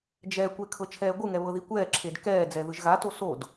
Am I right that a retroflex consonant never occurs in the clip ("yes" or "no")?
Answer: yes